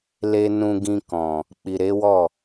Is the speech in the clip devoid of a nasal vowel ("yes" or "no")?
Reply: no